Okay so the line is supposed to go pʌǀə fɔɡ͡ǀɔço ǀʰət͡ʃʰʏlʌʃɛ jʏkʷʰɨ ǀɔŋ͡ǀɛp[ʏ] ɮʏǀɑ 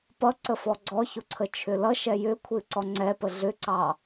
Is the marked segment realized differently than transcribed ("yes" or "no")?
yes